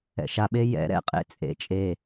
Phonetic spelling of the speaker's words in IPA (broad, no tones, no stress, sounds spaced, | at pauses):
ɛ̰ ʃ a ɓ e j ɛ̰ ɾ ɛ̰ qʼ ḛ t͡sʼ ḛ t͡ʃʼ e